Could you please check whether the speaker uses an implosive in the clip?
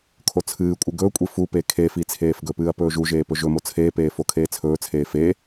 no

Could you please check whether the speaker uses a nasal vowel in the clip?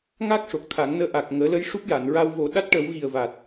no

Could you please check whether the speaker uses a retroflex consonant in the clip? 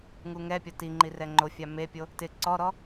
no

